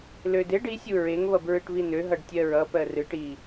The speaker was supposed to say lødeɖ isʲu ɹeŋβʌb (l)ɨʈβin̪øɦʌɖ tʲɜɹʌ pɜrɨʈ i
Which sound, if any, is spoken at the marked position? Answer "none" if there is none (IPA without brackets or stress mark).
ɹ